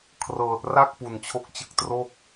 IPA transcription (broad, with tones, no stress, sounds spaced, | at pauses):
kʰ r ɤː˨˩ t̚ r a˥˩ k̚ p u˨˩ n t͡ɕʰ o˦˥ k̚ t͡ɕ ɯ˦˥ k̚ t r o˥˩ k̚